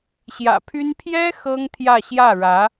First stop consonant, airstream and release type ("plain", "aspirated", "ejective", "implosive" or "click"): aspirated